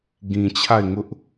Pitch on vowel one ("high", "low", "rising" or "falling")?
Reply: low